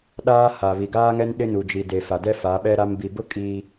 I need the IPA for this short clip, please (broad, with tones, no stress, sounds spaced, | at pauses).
ɗ aː˦ h a˨ β i˨ ɡ aː˦ ŋ ɛ˦ n ɗ ɪ˦ n u˨ d͡ʒ i˨ d e˨ f a˨ d ɛ˦ f a˨˦ ɓ ɛ˦ ɾ a˦ m b i˨ b ʊ˦ kʼ iː˦